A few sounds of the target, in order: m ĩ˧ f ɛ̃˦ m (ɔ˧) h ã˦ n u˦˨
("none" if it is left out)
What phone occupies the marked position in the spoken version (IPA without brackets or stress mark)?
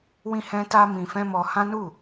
ɔ˧